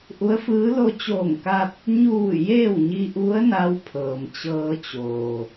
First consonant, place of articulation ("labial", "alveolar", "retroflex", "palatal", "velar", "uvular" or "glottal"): glottal